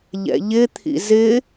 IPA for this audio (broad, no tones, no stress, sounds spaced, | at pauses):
ʎ ɛ̰ ʎ ɪ t̪ʰ ḭ z ɪ